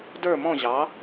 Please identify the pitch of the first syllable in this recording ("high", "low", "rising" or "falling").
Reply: falling